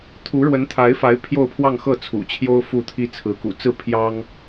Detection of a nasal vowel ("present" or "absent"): absent